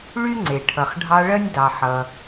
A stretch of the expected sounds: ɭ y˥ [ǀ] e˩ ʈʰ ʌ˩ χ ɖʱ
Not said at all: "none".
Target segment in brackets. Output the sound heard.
ŋ͡ǀ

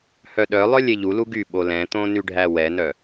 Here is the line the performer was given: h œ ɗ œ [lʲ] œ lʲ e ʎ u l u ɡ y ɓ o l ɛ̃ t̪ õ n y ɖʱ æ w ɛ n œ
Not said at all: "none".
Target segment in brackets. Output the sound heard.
lˠ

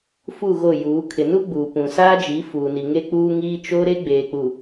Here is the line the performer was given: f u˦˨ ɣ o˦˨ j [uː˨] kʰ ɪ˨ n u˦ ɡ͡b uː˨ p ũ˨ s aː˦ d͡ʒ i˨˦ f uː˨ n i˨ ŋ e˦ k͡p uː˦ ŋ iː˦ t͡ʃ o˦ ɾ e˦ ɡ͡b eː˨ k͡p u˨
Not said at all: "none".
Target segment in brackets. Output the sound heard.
uː˨˦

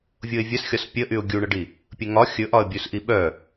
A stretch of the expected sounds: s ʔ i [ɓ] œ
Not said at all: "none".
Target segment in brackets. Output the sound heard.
ɓ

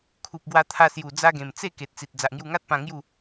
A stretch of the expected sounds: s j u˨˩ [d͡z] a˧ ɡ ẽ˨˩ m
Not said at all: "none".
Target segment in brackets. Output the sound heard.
d͡z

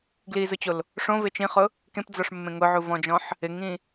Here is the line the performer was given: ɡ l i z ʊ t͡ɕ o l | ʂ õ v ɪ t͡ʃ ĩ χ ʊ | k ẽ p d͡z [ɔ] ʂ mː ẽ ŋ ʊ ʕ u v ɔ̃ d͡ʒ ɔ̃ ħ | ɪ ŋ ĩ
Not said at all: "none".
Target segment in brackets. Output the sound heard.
ɔ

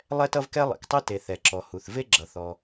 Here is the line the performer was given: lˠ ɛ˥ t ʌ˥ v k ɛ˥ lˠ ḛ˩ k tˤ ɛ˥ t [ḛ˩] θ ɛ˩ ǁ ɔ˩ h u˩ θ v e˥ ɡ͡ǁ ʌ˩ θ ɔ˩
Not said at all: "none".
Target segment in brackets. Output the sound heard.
e˩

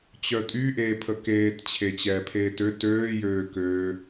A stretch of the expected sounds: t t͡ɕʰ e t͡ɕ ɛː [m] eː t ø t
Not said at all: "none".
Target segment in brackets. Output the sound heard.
pʰ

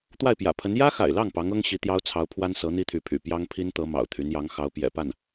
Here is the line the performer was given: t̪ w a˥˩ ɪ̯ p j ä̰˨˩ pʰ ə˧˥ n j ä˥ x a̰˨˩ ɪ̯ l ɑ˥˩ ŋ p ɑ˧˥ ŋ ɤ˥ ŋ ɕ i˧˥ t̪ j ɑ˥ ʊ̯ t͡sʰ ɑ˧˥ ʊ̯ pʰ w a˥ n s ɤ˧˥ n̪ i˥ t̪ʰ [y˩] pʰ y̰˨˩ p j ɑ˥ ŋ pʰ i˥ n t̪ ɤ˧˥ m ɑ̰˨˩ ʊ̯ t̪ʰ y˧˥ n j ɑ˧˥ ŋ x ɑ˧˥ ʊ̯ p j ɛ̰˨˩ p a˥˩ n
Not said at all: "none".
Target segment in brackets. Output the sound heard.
y˧˥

